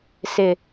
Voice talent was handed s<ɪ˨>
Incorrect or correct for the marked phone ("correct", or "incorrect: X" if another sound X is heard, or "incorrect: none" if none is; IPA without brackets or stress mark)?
correct